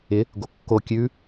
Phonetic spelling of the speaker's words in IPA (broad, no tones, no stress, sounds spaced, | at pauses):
ɪ | ɡ o kː o kʲ ʉ